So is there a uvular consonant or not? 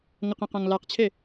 yes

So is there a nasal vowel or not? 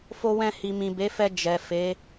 yes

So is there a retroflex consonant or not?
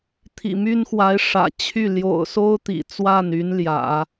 yes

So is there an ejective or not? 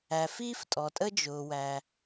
yes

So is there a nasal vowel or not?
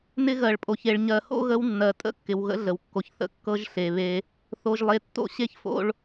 no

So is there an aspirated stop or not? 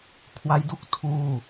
yes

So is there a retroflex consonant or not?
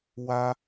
no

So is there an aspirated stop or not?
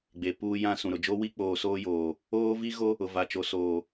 no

